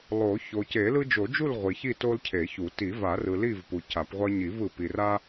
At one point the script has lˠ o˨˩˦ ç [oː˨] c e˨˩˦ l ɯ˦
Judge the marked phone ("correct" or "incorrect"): incorrect